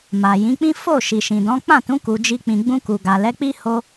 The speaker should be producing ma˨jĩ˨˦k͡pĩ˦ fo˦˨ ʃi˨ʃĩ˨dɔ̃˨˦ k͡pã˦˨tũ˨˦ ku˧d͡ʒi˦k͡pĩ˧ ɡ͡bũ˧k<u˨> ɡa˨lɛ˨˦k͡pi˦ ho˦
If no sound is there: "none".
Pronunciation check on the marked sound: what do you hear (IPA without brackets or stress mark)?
u˨